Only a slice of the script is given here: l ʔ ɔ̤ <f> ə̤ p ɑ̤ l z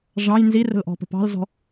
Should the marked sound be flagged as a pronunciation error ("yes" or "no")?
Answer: yes